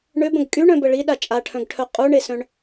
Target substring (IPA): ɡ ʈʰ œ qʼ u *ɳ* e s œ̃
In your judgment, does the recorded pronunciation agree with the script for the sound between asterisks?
yes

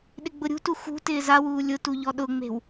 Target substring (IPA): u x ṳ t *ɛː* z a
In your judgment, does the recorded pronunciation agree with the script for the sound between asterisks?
no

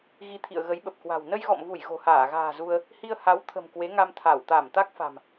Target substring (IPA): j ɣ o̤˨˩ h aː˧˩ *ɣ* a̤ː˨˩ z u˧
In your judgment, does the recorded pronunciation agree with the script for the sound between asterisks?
yes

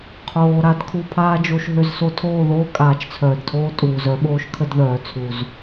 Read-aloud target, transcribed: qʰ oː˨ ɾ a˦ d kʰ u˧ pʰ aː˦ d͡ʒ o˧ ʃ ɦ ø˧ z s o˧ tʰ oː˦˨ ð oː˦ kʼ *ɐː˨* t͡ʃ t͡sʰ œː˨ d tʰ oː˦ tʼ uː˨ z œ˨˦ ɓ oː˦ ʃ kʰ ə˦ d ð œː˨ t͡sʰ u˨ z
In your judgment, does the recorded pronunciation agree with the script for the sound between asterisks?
no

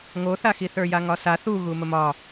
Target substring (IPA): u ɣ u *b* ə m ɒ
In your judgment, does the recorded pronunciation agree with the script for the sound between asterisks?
no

